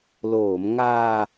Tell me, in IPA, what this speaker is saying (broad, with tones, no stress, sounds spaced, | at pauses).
l oː˩˦ m ŋ aː˧